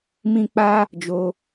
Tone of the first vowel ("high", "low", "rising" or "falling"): high